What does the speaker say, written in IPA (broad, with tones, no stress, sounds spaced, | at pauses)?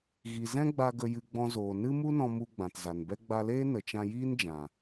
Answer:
ɣ i˨ z ɛ̃˦ ɡ͡b a˧ ɡ ə˧ j ɨ˧ ɡ͡b ɔ̃˧ z oː˨ n ɨ˦ m u˦ n ɔ̃˧ m u˧ ɡ͡b ã˨ t z a˨ n b ɛ˦ ɡ͡b a˧ l eː˦ n ə˨ t͡ʃ ã˧ j iː˦ n d͡ʒ ã˨